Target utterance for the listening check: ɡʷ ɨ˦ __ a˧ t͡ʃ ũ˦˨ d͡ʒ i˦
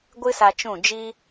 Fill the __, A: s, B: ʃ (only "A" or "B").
A